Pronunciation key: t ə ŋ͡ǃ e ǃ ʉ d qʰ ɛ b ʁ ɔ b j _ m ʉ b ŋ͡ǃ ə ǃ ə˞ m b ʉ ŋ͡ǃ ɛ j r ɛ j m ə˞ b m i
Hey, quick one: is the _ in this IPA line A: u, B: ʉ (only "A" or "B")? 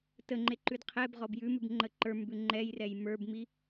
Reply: B